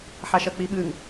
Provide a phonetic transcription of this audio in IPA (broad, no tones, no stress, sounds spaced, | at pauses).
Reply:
ħ a ʃ ɐ k͡p i ɓ ɨ ŋ